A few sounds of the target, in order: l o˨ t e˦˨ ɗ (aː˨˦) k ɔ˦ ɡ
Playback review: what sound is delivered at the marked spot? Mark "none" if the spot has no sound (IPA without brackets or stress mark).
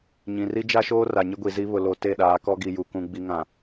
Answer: aː˨˦